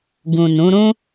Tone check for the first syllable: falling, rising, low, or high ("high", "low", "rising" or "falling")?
low